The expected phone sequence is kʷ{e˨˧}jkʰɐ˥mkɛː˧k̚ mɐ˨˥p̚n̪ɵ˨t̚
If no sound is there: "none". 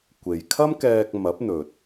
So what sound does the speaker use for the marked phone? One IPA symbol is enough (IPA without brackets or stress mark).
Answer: e˨